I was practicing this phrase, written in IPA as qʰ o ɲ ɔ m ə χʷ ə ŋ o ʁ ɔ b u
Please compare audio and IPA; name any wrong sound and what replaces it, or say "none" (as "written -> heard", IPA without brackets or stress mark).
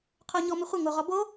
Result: u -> o